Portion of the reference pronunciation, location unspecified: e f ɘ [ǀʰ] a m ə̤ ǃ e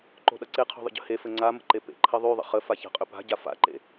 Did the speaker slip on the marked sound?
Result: yes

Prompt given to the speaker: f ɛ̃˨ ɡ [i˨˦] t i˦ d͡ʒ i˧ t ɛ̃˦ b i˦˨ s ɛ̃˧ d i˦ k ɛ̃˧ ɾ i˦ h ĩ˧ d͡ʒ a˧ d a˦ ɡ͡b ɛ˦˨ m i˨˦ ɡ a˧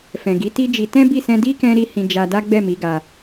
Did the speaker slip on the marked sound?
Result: no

